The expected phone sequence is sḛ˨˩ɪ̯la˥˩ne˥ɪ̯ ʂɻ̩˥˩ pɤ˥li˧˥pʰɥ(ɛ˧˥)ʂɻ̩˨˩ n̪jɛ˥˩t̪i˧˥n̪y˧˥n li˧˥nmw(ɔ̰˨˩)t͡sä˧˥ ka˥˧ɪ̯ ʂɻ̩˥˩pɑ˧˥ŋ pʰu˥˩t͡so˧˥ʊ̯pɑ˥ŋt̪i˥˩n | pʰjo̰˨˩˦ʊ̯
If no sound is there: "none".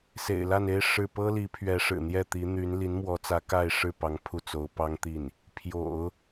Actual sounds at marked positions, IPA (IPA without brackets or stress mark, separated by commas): ɛ˧˥, ɔ˧˥